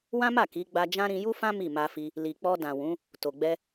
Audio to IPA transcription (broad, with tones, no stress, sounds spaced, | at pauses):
w ã˦ m a˦˨ k i˨˦ ɡ͡b a˧ d͡ʒ ã˦ ɾ ĩ˧ j u˦ f ã˦ m i˦˨ m a˧ f i˧ | l i˨ k͡p ɔ˧ d ã˨ w ũ˨˦ | t o˨ ɡ͡b ɛ˧